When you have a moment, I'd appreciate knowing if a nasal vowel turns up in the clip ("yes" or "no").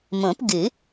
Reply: yes